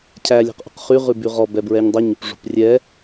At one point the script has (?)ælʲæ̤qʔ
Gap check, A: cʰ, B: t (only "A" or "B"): A